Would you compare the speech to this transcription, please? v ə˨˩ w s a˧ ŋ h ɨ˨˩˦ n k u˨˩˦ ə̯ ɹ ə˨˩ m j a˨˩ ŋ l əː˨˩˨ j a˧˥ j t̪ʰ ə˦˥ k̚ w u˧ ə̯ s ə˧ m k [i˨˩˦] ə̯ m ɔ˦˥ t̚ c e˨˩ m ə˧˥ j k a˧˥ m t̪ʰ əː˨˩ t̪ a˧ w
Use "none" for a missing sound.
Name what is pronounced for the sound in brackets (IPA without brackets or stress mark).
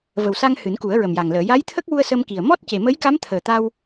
i˨˩